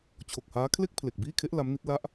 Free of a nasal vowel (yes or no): yes